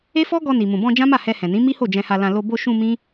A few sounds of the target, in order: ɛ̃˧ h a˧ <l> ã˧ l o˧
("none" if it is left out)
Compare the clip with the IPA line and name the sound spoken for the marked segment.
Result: l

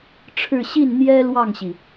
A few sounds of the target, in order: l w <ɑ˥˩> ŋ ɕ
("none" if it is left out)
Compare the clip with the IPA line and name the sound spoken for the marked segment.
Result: ɑ˥˩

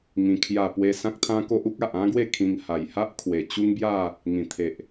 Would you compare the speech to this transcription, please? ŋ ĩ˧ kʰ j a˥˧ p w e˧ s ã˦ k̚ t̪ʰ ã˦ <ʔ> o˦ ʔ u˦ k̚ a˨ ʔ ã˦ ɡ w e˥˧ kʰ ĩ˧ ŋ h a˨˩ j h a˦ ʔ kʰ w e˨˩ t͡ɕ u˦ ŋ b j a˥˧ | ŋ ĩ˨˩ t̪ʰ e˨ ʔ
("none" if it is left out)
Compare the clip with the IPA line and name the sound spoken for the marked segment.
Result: k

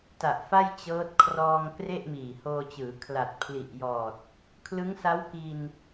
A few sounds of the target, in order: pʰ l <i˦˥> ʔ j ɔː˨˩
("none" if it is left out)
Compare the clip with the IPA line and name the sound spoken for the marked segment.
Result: i˨˩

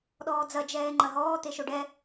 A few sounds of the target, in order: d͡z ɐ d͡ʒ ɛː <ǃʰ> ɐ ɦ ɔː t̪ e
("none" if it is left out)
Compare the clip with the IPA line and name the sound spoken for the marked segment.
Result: ŋ͡ǃ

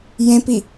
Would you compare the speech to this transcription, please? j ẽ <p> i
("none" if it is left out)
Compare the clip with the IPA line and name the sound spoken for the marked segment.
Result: p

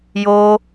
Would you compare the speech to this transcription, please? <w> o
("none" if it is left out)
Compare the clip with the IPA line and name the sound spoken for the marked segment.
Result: j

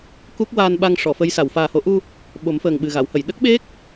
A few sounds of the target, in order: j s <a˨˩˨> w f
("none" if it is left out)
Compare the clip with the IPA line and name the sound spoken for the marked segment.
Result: a˨˩˨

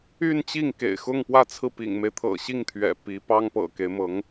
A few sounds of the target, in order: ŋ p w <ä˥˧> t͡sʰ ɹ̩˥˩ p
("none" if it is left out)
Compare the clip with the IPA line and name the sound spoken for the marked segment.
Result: ä˥˧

